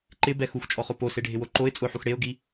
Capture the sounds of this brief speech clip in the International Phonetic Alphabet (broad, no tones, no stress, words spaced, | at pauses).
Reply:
ǃɪbɛ xuxt͡ʃʼɔχo poseɖʱɪwo ǃoɪ̯ t͡sʼʊħux ɽeʊ̯ɡi